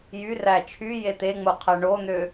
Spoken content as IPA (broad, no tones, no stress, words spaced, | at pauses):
jyræ t͡ʃʰy jet̪eŋ͡mo qʰæɳon̪ø